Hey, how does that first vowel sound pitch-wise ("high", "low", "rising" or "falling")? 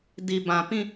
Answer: low